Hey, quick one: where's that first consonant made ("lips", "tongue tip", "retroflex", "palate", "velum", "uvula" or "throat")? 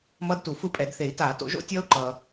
lips